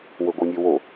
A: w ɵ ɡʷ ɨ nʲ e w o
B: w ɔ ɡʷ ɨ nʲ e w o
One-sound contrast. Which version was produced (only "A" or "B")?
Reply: A